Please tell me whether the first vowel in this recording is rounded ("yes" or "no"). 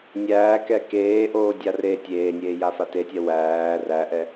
no